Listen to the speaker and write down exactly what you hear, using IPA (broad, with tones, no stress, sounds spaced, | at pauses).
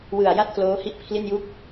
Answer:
w ɯ˨˩ a̯ j a˥˩ t̚ k l oː˦˥ h i˥˩ ʔ pʰ l i˥˩ n j u˥˩ k̚